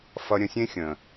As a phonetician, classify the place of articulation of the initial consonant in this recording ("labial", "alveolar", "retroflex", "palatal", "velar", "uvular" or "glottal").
labial